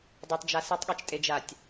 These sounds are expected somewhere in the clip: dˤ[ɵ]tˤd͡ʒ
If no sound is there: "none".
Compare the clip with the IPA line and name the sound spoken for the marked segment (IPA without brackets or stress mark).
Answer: ɵ